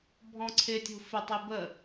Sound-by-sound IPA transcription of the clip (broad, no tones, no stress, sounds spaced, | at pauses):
bʱ ɔ̃ ǀʰ ɪ tʲ ṳ f ɪ tˤ i b ə